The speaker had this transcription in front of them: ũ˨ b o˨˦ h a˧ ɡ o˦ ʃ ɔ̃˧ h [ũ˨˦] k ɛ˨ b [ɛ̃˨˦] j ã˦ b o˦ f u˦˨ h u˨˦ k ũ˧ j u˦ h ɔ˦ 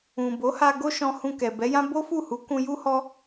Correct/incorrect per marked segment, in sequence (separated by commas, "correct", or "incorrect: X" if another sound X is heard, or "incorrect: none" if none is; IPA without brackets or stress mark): incorrect: ũ˧, incorrect: ɛ˨˦